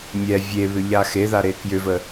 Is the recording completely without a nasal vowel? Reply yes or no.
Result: yes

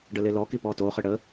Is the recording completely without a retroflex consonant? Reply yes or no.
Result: no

